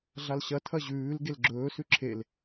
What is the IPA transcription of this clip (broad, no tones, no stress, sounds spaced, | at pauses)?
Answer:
ɮ a l ɕ ɐ tʰ ɐ ʑ ʉː l ɡ e l ɡ͡ǁ ɵː s ʉ ǁʰ e l